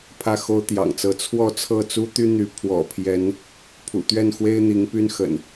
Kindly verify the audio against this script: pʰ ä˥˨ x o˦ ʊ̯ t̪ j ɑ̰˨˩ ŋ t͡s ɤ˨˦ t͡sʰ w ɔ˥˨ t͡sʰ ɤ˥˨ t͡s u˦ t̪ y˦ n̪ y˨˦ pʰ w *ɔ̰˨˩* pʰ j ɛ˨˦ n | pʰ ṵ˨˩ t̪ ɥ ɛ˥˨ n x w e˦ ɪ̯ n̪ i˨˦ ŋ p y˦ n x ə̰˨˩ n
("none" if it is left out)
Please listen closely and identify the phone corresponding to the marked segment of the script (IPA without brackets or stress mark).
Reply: ɔ̰˨˩